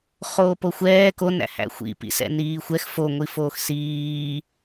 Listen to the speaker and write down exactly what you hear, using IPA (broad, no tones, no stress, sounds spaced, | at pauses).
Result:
χ oː p o xʷ ɛː k o n æ̰ h æ̰ xʷ ḭ p ḭ s ɛ̰ n iː xʷ ɛ x f o ŋʷ i f oː x s iː